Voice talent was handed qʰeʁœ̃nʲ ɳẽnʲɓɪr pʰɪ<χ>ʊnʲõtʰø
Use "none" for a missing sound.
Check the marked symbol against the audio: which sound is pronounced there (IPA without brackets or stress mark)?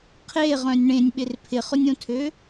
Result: χ